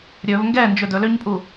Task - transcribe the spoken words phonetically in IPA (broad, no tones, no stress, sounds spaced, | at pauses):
ɾʲ ɵ v ŋ ɡ ɛ n d͡ʒ ɵ d ɵ l ø ɲ pʼ u